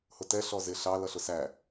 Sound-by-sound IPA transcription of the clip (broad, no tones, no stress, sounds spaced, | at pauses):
h ʊ t ɛ ɬ ɔ z ɪ ɬ ɑ l ʌ ɬ ʊ s æ